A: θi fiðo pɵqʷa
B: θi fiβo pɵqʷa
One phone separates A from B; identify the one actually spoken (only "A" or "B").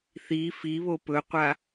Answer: B